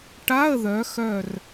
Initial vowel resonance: oral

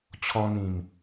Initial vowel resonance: nasal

